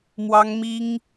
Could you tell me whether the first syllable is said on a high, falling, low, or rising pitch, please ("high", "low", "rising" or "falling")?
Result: high